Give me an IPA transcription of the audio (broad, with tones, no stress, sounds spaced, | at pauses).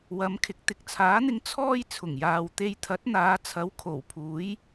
w ɐ˨˧ m kʰ ɪ˨ k̚ t̪ ɪ˨ k̚ t͡sʰ aː˨˥ n̪ ɪ˧ ŋ t͡sʰ ɔː˧ j t͡sʰ ʊ˨˩ ŋ j aː˨ w t̪ e˧ j t̪ʰ ɐ˨˥ t̚ n̪ aː˨˧ t͡sʰ ɐ˨˥ w kʰ o˨˩ w pʰ uː˨˥ j